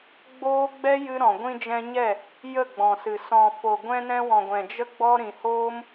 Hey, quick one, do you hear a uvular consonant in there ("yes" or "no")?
no